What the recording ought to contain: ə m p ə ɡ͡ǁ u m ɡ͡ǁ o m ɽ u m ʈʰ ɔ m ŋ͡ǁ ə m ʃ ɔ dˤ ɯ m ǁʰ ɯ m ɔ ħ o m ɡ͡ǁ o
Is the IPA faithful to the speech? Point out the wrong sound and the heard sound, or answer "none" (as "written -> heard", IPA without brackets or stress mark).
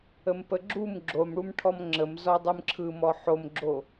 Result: ʃ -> z